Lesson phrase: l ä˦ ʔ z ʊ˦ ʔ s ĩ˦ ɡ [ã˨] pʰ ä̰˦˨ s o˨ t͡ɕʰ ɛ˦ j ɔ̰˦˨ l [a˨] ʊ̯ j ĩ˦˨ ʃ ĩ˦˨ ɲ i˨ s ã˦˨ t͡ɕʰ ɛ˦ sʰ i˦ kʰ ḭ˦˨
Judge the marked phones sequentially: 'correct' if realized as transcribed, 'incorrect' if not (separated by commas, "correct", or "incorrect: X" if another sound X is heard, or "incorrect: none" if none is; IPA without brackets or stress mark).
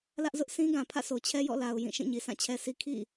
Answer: correct, correct